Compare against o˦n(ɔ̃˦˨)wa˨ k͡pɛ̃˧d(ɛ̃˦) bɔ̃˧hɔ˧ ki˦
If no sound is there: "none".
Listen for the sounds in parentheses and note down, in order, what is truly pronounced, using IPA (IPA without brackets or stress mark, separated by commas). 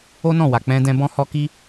ɔ̃˦˨, ɛ̃˧